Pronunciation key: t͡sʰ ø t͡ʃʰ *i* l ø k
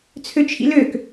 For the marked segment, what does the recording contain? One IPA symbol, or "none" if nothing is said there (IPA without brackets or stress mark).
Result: ḭ